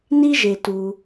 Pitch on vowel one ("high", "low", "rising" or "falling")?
high